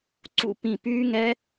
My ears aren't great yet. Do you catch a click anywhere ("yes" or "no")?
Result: yes